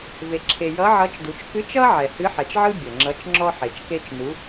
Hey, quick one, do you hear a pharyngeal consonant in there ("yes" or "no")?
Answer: yes